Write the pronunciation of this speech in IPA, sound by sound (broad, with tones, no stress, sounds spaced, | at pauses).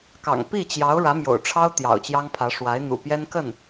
k ɑ̰˨˩ ŋ p i˥˩ t͡ɕ j ɑ˧˥ ʊ̯ ɻ ä˧˥ m j o̰˨˩ ʊ̯ ʈ͡ʂʰ ɑ˥ ʊ̯ t̪ j ɑ̰˨˩ ʊ̯ t͡ɕ j ɑ˥ ŋ pʰ ä˧˥ ʂ w a˧˥ ɪ̯ n̪ ṵ˨˩ p j ɛ˥ n k ə˥˩ n